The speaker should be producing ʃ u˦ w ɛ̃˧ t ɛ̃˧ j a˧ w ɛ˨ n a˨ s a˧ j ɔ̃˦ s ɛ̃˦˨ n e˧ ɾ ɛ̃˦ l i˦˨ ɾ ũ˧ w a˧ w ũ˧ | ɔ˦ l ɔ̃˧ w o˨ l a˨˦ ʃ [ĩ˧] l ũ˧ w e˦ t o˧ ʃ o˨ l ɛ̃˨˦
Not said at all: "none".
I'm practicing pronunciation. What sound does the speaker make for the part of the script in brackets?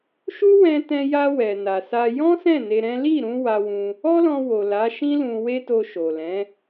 ĩ˦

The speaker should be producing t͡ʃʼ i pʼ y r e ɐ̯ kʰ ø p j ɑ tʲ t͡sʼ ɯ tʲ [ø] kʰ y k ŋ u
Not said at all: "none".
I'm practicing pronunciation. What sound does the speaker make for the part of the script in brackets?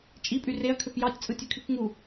ø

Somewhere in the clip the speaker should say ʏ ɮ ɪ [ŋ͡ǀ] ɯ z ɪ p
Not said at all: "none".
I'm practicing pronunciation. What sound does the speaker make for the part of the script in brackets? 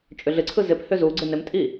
ǀʰ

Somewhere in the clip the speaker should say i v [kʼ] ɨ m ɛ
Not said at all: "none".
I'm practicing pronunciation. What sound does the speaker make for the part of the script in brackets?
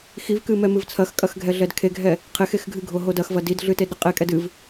k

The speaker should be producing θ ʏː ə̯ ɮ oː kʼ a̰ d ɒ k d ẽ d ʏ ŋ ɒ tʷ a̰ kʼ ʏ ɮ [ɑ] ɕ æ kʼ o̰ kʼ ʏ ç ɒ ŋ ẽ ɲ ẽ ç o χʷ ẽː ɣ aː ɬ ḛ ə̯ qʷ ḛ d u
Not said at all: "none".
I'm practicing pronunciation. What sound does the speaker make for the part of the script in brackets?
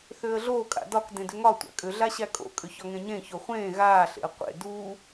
a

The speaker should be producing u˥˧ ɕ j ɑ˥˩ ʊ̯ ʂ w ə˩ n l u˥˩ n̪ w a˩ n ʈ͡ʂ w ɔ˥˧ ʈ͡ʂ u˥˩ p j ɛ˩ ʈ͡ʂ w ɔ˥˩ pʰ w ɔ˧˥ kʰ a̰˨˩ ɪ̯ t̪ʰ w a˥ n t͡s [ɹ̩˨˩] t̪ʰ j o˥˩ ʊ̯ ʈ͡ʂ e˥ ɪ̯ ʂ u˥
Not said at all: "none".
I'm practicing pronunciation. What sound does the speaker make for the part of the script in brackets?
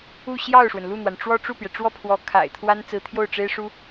ɹ̩˧˥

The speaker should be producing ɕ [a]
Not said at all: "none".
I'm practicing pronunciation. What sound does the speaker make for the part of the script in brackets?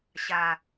a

